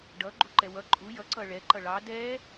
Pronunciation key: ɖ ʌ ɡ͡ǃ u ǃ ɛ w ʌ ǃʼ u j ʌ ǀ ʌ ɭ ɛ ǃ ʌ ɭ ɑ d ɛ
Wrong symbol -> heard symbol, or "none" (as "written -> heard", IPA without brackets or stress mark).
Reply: none